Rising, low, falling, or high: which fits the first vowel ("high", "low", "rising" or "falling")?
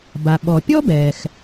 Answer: low